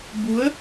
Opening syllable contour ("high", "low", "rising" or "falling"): rising